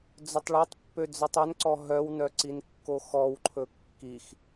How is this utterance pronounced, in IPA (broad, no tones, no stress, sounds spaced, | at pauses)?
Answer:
d͡z ɵ tˤ ɭ ɑ tˤ pː ø d͡z œ tˤ œ n ǀ ɔ ɦ œ w n œ ǀ i n kː o x ɔ w ǃʰ ɵ kː i x